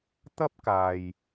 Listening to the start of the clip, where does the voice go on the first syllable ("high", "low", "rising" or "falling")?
high